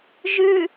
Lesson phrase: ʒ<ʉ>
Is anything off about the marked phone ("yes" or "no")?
no